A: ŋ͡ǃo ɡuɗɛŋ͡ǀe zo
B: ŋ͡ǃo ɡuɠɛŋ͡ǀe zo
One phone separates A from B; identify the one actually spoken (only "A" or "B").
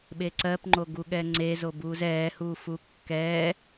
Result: B